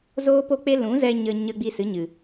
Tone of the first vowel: high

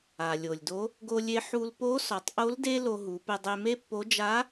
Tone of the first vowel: low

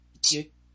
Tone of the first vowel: falling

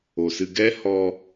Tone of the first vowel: low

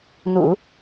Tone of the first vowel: low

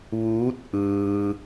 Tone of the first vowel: rising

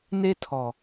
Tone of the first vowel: high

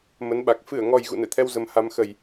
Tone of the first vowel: rising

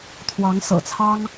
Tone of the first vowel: rising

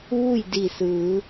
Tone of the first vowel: falling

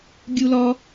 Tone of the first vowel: high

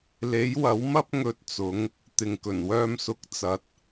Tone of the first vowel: rising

